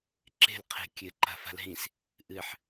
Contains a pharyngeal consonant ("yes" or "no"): yes